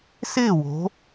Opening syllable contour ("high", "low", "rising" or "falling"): falling